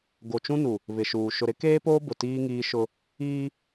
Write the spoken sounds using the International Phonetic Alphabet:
ɡ o˨ t͡ʃ ũ˦ n u˨ | β ɪ˨ ʃ uː˨ ʃ ʊ˨ ɾ ɪ˦ k eː˦ p oː˦ b ʊ˨ t iː˦ ŋ iː˦ ʃ ʊ˦ | iː˦

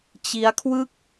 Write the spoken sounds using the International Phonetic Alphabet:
t͡ɕ i˦˥ a̯ kʰ w ɯ˥˩ k̚

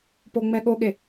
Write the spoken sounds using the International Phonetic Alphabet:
p o ŋ͡m ɛ ɠ o ɠ e

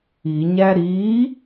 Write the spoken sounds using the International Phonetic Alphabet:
i ɲ æ ɾ i

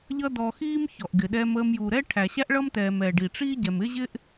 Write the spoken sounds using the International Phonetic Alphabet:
ʎ ʌ˥ d ɔ˧ x iː˥ m ç ɔ˩ ʔ ɡ ɪ˩ ɗ ɛ˧ m əː˧ m j u˩ ɾ ɛ˥ ʈʰ æ˩ ɕ æ˥ ʔ ɭ ʌ˥ m t ɛː˩ m ɛː˩ ɖ i˩ ʈ͡ʂ iː˥ ɟ ɛ˩ m ɪ˥ ʑ ɪ˥ ʔ

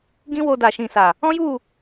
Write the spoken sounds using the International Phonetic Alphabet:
ɡ ĩ˦ w o˧ d a˨ ʃ ĩ˨ s a˨ | ɔ̃˦ j u˦˨

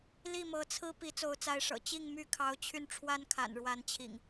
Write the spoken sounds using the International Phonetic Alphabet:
l i˥˨ m ɤ˨˦ t͡sʰ ɹ̩˦ p i˨˦ t͡s o˨˦ ʊ̯ t͡s a˨˦ ɪ̯ ʂ ɤ̰˨˩ t͡ɕ i˥˨ ŋ m y˥˨ kʰ ɑ˨˦ ʊ̯ t͡ɕʰ y˧ n ʈ͡ʂʰ w a˦ n kʰ a̰˨˩ n ɻ w a˨˦ n t͡ɕʰ ḭ˨˩ ŋ

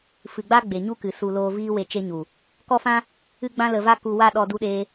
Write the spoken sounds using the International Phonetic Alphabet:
f ɨ˨ ɡ͡b a˦ ɡ͡b e˨ ɲ u˦ k ɨ˨ s u˧ l oː˧ v iː˦ w e˧ t͡ʃ e˦ ɲ u˨ | k ɔ˦ f ã˦ | ɨ˦ ɡ͡b ã˦ l ə˧ v a˦ k u˧ w a˦ ɗ ɔ˧ d u˧ ɗ eː˧

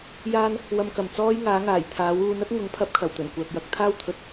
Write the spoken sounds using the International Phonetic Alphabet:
j aː˥ n | w ɐ˨ m k ɐ˨˩ m t͡s ɔː˥ j ŋ aː˨˥ ŋ aː˨˩ j t̪ʰ aː˨˥ w uː˨˧ n ɐ˥ t̚ ŋ ʊ˨˥ ŋ pʰ ɐ˨˥ p̚ kʰ ɐ˨˩ w t̪ ɵ˨˩ n kʷ œː˨ k̚ j ɐ˨˥ k̚ t̪ʰ aː˥ w t̪ʰ ɵ˨˥ t̚

